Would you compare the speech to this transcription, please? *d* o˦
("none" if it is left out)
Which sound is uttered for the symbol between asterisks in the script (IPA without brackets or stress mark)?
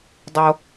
dˤ